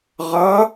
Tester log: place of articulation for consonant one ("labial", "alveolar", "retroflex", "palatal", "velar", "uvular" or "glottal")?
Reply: uvular